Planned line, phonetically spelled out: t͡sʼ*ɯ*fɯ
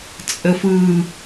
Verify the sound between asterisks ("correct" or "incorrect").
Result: incorrect